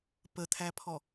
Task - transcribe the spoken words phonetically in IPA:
p ə t̪ʰ æ pʰ ɔ

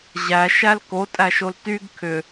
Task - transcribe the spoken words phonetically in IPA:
ʑ æ ʃ æ l k o tʼ æ ʃ o l t y ɡ kʰ ʏ

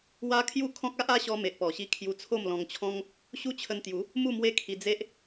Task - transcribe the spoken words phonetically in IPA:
w a˦ kʰ j u˥˧ kʰ ɔ̃˦ k̚ a˦ ʔ a˦ ɕ ɔ˧ m e˨ ʔ p ɔ˨˩ ɕ i˧ kʰ j u˧ t͡sʰ o˥˧ m l ɔ̃˧ ŋ t͡ɕʰ ɔ̃˦ ŋ | ɕ u˦ t͡ɕʰ ə˧ n t̪ j u˨˦ | m u˥˧ m w e˦ kʰ i˧ d͡z e˦ ʔ

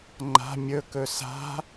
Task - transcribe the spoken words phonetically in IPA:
ŋ͡ǃ a̤ mʲ ɵ k ɵ s a̤

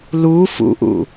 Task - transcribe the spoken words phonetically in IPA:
l u f ṵ ʔ ṵ

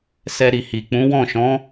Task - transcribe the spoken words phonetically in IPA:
s ɛ˧ ɾ i˨ h i˨ k͡p ũ˨˦ w ɔ̃˦˨ ʃ ɔ̃˨˦

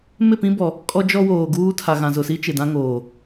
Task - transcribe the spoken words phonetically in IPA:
m ɪ˦˨ p ĩ˦ b ɔ˨ | kʼ ɔ˦ d͡ʒ ɔ˦ w oː˨ ɡ uː˦ tʰ a˨ ɣ ã˨ z ʊ˨ s i˦ t͡ʃ ɪ˨ d ã˦ ŋ oː˨

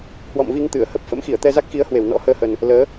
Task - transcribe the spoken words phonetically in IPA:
h w ɔ̰˧˨ m v i˧ ŋ t̪ ɨ˧˩ ə̯ h ə˦˥ p̚ f ə̰˧˥ m x i˧˩ ə̯ t̪ ɛ˧ z a˦˥ k̚ x i˨˦ ə̯ h w e˧˩ w n ɔ̰˧˥ h əː˧ h ə˨˩ n | l əː˨˦

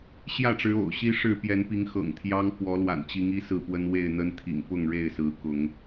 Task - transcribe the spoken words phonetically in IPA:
ɕ j ä˥˨ ʈ͡ʂ ɻ̩˨˦ o̰˨˩ ʊ̯ ɕ i˦ ʂ ɻ̩˥˨ p j ɛ˨˦ n p i˨˦ ŋ x ɤ̰˨˩ ŋ t̪ʰ j ɑ˦ ŋ f w ɔ˨˦ l w a̰˨˩ n t͡ɕ i˨˦ ŋ i˦ s ɹ̩˥˨ p w ə˦ n w e˥˨ ɪ̯ n̪ ə˦ n t̪ʰ ḭ˨˩ ŋ p ʊ˥˨ ŋ ɻ e˥˨ ɪ̯ s ɹ̩˨˦ k ʊ˨˦ ŋ

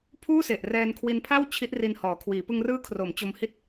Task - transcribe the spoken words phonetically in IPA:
pʰ uː˥˩ s e˨˩ ʔ r ɛː˧ n kʰ w i˧ n pʰ a˥˩ w t͡ɕʰ i˦˥ t̚ r i˧ n h ɔː˩˦ kʰ w iː˩˦ p ɯ˧ ŋ r ɯː˦˥ kʰ r o˩˦ m t͡ɕ o˧ m h i˦˥ t̚

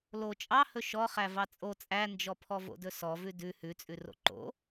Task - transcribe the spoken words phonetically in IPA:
l o t͡ʃʼ ɑ h ɵ ʃ ɔ χ æ v ɑ t͡sʼ o t͡sʼ æ n d͡ʒ ɔ pʰ ɔ v o̰ d ɵ s ɔ v ʉ d ʉ h ʉ t͡sʼ ʉ r o̰ ǃ o̰

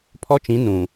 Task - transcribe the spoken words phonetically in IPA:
pʰ ɔ˦ t͡ʃ ĩ˨˦ n ũ˨

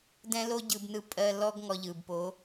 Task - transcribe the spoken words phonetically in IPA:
d ɛ̃˦ l o˦ ɟ ɯ˧ b n ɯ˧ pʼ ɜ˧ l ɔ˦ ɡ ŋ ɔ˧ ʎ ɯ˨ b p o˨˦

